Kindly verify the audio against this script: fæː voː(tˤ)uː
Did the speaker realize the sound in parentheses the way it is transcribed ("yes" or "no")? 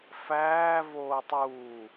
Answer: yes